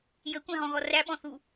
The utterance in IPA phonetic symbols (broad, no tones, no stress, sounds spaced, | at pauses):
j ə kʷ æ̃ ɦ ɔ̃ ɣ ɔ r æ ɓ ɔ̃ θ u